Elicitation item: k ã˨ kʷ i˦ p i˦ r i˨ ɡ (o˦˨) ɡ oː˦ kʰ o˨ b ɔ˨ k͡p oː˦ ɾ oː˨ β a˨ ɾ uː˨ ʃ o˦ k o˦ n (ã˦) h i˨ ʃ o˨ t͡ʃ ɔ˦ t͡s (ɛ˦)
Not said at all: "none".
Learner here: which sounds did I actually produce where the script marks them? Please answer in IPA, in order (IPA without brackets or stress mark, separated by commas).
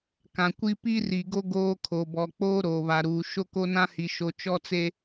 o˦, ã˦, e˦